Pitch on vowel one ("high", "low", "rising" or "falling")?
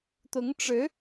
rising